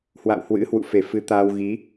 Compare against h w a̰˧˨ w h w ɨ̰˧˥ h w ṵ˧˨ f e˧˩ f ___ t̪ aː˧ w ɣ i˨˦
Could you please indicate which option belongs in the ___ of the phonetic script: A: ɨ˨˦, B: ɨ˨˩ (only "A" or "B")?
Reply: A